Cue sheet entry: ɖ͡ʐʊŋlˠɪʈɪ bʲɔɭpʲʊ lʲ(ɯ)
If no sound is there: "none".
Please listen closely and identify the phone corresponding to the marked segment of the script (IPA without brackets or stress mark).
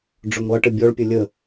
ə